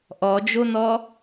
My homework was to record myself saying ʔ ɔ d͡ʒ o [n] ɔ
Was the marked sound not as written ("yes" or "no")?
no